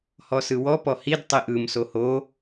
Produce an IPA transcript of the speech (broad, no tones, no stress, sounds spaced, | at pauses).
h ɔ s ɯ w ɔ p ɔ h i d tˤ i ʔ ɯ m s o h o